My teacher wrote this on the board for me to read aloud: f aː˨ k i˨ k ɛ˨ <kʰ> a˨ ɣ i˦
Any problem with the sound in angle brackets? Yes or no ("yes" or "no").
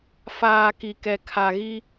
no